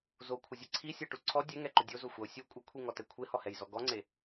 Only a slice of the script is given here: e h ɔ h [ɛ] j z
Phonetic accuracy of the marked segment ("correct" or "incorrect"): correct